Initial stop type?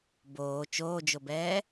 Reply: plain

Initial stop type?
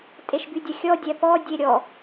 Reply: ejective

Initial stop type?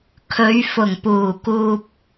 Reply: aspirated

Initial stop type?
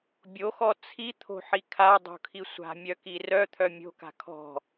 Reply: plain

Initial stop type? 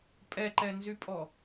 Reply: ejective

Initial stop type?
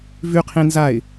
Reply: aspirated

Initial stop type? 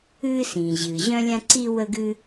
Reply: click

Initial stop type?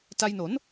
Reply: plain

